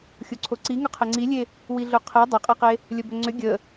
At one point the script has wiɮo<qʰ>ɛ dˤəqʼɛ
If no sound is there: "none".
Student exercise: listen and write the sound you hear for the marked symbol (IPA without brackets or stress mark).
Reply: qʰ